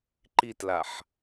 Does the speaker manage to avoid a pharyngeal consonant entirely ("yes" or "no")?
no